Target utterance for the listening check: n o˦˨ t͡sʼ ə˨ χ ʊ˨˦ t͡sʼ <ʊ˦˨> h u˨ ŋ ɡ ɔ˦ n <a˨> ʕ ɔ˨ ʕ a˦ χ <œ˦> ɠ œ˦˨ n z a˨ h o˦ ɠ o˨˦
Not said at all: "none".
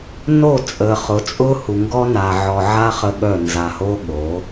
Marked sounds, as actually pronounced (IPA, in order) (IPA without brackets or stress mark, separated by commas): ʊ˦, a˨, ə˦